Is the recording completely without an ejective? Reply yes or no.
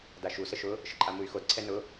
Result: no